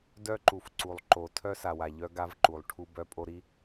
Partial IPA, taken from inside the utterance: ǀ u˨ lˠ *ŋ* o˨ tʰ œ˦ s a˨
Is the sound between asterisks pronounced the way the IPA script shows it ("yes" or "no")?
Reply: no